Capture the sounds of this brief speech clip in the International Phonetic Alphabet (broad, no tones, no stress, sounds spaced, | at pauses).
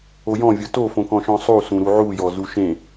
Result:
o j ɔ̃ vʲ o t o f õ k ɔ̃ ʃ ɔ̃ sˤ u s ũ ɾ u ʕ u j ɔ z u ʃ ẽ